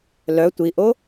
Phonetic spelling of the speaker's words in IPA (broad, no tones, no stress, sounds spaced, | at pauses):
l œ tʷ i ʔ o